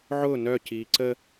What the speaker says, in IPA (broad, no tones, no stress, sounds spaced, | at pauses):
ʕ ʊː n œ c iː ǀ ə